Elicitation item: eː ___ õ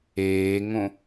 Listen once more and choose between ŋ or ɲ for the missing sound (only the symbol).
ŋ